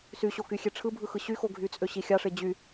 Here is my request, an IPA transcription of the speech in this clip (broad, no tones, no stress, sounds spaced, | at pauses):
s y ɕ o k y xʲ e ʈ͡ʂʰ ɯ bʱ ɯ x ɯ ɕ y x o ɡʱ y t͡sʼ ø ɕ i xʲ ɑ ʂ e d͡ʑ y